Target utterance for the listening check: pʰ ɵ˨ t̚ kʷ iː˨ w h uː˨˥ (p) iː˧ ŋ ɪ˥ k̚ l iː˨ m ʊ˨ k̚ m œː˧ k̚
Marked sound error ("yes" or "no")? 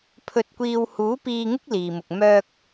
no